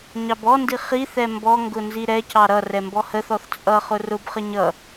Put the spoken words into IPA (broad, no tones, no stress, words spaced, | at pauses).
ɲɑbɔndi χiθɛ mbɔŋɡʊ nziɾɛcɑ ɾʌ rɛmbɔhəθɔθ t͡sʼʌ χʊrʊbχə ɲʌ